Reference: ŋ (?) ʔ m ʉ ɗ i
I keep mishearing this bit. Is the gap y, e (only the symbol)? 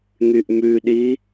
y